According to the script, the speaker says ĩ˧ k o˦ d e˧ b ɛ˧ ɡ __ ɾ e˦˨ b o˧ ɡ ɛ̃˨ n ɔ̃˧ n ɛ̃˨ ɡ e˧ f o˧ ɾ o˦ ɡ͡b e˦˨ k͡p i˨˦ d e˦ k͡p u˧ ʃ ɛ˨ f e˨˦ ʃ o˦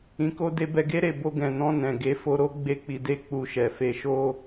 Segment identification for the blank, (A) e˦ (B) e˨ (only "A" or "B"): A